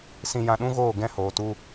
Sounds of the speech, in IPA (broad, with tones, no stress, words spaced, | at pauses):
sĩ˧jã˧ɗũ˦ɣoː˦˨ ɡɛ̃˧ hoː˨tu˧